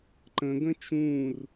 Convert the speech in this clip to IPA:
ǃə̃ɡə̃ t͡ʃũr

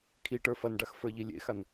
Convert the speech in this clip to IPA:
kʰiʈə˞ fɐnɖax fə˞ʎilʲḛxan

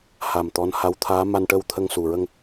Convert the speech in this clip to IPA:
ha˨˩m t̪ɔ˧˥n ha˧˥wt̪ʰaː˧˥ ma˧nʈə˧w t̪ʰə˧ŋsu˨˩ɹə˧ŋ

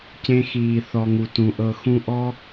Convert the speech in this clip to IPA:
cẽ˧xiː˨ θɔ˨ŋu˨tũ˨ ʔɤ˧xũ˦ ʔɔ˦

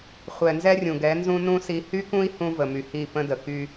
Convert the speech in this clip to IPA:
χʷɛ˨nzɛ˦rʲũ˨ ɡɛ˨˦nzũ˦nũ˦ si˨hy˦kũ˦i̯ hũ˦və˨my˨hi˦˨ pə̃˦də˨ ky˦

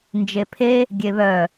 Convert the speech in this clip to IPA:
nd͡ʒepʰe | ɡʲeβœ

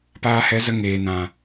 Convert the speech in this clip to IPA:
paː˧hɛ˨˦zə˧ ŋeː˨nã˨

